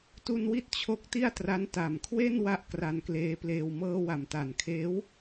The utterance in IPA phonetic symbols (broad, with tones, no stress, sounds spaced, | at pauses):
t u˧ n w i˥˩ t̚ t͡ɕʰ o˦˥ k̚ t i˥˩ a̯ t r a˦˥ n t a˨˩ m kʰ w e˥˩ n w a˥˩ ʔ k r a˧ n k l eː˦˥ p l eː˧ w m ɤː˧ w a˩˦ m t a˨˩ n kʰ eː˦˥ w